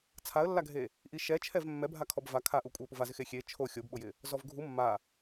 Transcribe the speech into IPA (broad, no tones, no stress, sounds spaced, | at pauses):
t͡sʰ a ə̯ lː a ɡʱ e | ʔ i ʃ ɛ t͡ʃʰ ɛ v mː ɛ bʱ a kʰ ɔ b v a kʰ a ʔ u kʷʼ ɛ ə̯ p ʊ v a z ɪ x e xʲ e t͡ʃʰ o xʲ o b ɓ ʊ j ɪ | z ɔ v ɡʱ u mː a